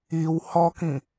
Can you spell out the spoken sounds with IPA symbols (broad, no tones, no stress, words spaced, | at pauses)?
iw hɔkĩ